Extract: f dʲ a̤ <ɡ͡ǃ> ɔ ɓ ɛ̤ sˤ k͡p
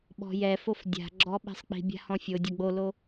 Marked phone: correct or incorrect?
incorrect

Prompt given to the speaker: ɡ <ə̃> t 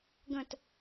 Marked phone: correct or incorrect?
correct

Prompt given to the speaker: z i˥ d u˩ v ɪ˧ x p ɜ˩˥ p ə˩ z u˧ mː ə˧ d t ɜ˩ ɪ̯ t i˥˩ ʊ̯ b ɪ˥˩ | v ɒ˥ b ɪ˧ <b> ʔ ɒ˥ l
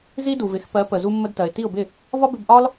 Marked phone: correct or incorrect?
correct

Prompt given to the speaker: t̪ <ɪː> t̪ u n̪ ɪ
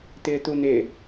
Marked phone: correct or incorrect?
correct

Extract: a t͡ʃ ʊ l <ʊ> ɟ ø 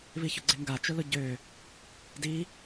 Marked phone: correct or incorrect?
correct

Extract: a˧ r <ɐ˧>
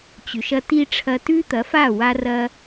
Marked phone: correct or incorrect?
correct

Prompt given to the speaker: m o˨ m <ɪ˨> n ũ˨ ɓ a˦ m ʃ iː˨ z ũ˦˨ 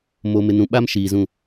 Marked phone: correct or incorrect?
correct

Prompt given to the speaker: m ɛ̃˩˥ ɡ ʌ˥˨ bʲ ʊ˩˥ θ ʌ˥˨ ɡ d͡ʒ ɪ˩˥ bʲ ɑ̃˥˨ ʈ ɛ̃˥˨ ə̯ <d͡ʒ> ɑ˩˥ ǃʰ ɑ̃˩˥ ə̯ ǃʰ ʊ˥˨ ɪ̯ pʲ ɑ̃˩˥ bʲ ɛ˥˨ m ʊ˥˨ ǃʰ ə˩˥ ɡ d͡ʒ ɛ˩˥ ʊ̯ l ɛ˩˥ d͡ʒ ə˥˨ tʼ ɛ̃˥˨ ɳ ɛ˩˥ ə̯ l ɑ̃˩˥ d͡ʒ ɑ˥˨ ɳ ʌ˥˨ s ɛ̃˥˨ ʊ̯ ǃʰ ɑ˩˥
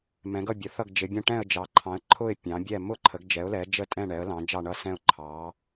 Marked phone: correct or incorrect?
correct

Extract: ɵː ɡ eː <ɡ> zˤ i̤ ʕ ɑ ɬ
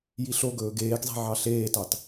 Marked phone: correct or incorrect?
correct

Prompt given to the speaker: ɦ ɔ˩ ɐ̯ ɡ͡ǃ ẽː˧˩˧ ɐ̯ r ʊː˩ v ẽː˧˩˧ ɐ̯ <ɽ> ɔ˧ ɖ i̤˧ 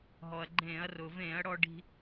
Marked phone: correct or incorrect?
correct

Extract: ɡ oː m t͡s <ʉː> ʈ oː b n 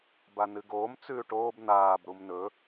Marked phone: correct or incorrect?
correct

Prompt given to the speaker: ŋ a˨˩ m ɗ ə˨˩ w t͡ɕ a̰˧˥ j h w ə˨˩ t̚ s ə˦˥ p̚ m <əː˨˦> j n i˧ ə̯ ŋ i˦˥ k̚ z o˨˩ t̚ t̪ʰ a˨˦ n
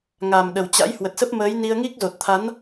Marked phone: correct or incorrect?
correct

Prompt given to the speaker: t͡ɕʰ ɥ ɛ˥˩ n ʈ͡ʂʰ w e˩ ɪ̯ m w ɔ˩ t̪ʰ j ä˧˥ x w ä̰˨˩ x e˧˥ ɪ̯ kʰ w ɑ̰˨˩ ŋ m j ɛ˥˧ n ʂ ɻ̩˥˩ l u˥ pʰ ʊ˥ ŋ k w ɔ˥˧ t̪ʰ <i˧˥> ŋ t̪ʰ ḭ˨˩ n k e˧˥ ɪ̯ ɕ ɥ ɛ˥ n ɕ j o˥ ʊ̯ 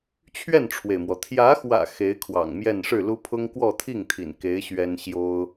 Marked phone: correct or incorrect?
incorrect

